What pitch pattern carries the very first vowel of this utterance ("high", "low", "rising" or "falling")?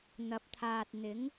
rising